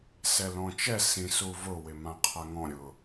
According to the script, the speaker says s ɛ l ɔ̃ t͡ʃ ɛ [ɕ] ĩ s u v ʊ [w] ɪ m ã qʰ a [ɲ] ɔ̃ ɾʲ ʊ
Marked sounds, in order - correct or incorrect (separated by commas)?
incorrect, correct, incorrect